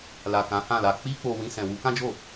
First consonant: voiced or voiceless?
voiced